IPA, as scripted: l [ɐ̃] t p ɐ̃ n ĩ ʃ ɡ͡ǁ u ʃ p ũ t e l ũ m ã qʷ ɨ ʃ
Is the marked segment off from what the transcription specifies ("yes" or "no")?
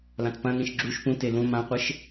yes